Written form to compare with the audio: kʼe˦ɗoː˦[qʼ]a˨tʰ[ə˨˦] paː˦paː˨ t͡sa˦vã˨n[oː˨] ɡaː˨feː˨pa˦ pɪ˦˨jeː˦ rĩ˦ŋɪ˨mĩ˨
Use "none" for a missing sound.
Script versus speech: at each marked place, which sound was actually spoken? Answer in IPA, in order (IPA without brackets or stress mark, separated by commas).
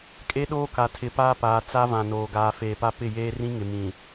k, ɪ˨˦, oː˨